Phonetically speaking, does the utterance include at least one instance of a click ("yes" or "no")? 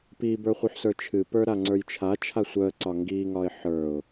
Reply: yes